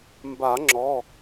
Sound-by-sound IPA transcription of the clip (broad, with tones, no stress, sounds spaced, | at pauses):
m b a˨˩˦ ŋ͡ǁ ɔ˩˧˩